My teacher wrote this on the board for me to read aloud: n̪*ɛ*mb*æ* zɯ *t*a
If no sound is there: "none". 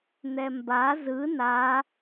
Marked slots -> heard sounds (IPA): ɛ, a, n

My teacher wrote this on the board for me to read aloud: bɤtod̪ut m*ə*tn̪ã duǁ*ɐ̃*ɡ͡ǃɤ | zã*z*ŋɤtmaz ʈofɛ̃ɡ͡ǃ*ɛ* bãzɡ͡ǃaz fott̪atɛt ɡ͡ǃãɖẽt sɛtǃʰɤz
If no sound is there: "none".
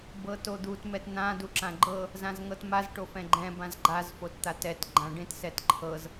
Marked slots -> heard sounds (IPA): ɛ, ã, z, ɛ̃

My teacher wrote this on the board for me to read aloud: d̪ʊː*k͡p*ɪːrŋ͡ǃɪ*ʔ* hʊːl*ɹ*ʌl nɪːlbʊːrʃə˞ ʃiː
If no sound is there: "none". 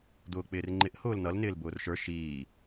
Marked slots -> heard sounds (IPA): k͡p, ʔ, n

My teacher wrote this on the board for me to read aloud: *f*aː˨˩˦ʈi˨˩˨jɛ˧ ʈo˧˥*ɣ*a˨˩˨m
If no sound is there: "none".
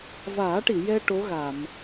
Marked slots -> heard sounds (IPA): v, ɣ

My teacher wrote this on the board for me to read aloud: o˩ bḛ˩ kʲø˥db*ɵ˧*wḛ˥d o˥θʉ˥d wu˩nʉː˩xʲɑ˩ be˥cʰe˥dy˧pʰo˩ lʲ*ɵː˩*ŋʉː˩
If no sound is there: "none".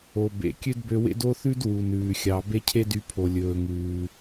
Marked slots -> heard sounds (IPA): ø˧, ɵː˩

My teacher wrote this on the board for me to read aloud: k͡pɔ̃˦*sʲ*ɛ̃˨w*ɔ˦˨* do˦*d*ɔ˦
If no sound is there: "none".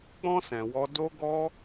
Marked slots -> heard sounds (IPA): s, ɔ˧, ɡ

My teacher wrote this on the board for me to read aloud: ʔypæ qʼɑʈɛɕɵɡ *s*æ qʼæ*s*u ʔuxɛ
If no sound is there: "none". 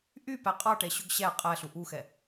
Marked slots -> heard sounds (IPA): ɕ, ɬ

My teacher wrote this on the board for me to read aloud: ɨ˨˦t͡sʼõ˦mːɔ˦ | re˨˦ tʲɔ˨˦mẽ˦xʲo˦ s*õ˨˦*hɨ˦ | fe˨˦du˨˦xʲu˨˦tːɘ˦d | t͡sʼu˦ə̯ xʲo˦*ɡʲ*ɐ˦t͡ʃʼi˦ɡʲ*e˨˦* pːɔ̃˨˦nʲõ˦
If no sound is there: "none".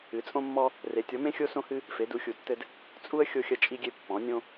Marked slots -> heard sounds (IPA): õ˦, xʲ, e˦

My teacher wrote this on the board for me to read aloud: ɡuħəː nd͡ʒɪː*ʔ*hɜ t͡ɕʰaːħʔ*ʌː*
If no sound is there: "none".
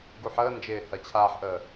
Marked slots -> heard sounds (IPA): none, əː

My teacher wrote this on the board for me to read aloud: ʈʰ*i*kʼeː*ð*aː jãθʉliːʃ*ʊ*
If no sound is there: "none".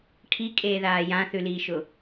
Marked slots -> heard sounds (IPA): i, ð, ʊ

